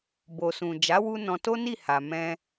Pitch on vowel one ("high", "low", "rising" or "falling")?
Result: low